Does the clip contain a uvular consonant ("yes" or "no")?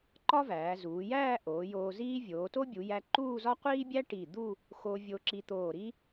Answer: yes